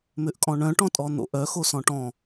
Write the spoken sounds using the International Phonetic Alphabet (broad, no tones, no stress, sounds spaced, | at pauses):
m ʏ ʔ kʼ ɔ̃ ɳ œ̃ ʈ ɔ̃ tʼ ɔ n̪ o̰ ʔ œ x o s ɔ̃ ʈ ɔ̃